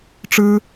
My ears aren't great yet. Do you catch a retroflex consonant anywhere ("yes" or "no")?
yes